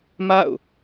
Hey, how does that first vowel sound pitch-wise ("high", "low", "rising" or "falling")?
falling